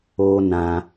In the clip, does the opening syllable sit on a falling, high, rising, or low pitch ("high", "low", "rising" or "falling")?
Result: high